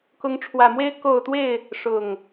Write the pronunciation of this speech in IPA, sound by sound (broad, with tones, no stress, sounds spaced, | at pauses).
k ʊ˨˦ ŋ ʈ͡ʂʰ w ä˨˩ m w e˦ ɪ̯ k o˥˨ ʊ̯ t̪ w e˥˨ ɪ̯ | ʂ ʊ˨˩ ŋ